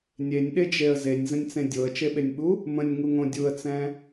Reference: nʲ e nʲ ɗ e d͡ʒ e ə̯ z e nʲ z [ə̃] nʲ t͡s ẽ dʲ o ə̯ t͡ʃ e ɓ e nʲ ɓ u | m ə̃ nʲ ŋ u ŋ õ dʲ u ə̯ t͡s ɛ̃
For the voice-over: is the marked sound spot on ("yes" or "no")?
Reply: yes